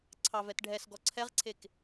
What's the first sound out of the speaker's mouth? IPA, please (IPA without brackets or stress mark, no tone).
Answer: ǀʰ